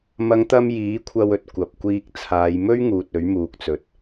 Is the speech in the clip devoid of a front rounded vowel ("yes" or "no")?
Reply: yes